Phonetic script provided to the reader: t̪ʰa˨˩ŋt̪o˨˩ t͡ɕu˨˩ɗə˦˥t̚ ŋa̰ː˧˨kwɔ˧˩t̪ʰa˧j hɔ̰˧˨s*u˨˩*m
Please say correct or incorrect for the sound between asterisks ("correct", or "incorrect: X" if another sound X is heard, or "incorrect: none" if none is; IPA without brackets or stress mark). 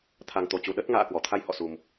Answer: correct